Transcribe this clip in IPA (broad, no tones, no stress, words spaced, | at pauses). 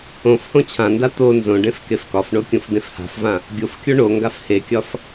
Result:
õf hõt͡ɕʰãnda t̪o nzõɖẽf kefkɒfɳo kʲõfdẽfha̤fvã | ɡʲofkʲo ɳoŋɡaf hekʲɒf